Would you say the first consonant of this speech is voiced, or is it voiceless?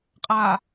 voiceless